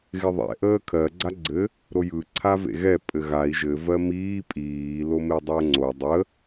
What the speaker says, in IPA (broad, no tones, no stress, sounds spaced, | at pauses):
ɣ ɪ ðˤ ɛ̰ ʔ əː kʰ ɜ ɡ͡ǀ a ɡ͡ǀ ɘ | ɾ o j ɯ ǀʰ a v ḛ ɣ ɛ pʼ ɘ ɣ a i̯ ʒ ɘ v ɜ m iː pʼ iː l o m e dˤ əː ŋ͡ǀ o dˤ ə